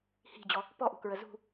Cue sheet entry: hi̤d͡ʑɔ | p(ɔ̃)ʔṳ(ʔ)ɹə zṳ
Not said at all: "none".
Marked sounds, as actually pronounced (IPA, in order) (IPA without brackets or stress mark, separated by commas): ɔ, k